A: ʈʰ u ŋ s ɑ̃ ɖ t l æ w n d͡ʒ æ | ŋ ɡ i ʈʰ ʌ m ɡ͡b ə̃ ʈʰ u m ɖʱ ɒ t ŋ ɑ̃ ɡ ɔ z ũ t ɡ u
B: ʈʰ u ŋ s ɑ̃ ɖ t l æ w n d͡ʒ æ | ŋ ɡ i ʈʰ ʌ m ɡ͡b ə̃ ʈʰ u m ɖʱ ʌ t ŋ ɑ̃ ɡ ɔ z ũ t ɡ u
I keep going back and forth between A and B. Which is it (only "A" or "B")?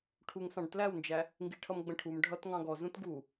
B